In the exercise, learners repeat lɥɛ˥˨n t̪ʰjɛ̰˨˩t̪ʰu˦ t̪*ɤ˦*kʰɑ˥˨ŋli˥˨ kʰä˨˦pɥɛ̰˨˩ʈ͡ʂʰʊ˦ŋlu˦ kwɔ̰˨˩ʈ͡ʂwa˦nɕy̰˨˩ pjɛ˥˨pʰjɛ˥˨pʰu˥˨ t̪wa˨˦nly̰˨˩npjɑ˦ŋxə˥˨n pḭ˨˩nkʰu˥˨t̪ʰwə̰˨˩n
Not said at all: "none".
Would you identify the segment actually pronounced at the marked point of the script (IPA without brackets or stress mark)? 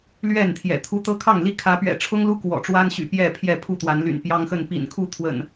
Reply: ɤ˦